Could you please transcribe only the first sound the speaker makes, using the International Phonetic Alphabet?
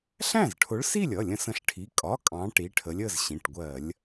ɬ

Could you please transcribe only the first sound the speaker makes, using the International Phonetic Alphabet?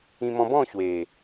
ĩ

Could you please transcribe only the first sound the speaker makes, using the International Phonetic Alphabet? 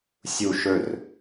sʲ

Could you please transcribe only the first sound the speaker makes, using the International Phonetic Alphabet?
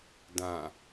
d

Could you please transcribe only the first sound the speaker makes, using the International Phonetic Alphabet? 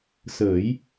s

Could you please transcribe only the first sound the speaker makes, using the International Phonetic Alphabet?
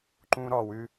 ǃ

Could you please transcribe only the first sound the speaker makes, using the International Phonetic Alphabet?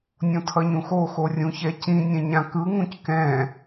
nʲ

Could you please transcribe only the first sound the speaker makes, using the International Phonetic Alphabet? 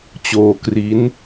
t͡ɕ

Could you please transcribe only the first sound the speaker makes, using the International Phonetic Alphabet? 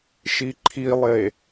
ʃ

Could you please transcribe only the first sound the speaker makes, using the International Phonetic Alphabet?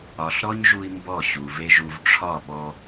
ɒ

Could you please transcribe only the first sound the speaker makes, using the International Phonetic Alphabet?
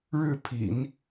ɻ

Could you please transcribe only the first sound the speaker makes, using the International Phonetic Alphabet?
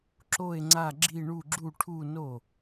ǁ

